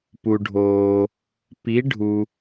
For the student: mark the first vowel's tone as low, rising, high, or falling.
low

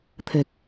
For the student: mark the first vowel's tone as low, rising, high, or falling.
low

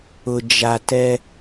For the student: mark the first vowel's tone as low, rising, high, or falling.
low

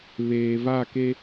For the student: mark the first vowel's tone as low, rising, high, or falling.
low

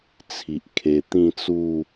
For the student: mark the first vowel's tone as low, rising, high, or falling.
low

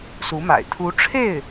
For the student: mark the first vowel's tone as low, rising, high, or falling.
rising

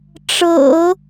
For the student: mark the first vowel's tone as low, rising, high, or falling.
low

